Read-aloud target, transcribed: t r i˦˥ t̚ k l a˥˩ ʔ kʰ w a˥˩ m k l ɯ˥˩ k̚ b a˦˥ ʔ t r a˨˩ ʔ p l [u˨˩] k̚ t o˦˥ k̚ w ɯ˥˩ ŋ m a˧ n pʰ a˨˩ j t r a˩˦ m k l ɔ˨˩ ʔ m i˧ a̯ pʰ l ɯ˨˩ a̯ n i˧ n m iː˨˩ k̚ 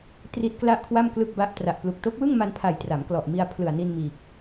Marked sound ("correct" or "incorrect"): correct